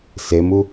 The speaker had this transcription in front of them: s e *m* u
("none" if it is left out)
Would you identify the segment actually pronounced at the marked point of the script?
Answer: m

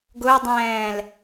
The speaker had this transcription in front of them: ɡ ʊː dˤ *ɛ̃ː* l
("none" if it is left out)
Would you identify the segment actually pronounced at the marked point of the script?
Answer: ɛ̃ː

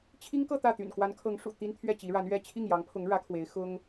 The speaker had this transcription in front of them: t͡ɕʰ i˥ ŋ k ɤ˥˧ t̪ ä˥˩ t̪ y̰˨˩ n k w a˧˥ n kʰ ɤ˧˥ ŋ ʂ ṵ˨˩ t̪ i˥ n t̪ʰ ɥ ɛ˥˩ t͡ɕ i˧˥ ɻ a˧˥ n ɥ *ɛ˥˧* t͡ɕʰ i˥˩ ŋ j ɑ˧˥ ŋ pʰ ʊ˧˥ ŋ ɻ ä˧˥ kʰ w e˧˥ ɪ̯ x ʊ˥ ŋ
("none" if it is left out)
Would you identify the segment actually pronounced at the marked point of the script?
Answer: ɛ˥˧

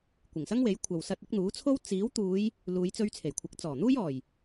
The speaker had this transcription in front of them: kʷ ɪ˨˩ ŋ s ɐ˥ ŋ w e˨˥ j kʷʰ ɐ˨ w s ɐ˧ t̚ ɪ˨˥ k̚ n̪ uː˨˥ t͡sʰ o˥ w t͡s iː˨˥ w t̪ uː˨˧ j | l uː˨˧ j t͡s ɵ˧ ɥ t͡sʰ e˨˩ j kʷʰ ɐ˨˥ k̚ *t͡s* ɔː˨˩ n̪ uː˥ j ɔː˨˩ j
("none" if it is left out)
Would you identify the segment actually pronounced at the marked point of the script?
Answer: t͡s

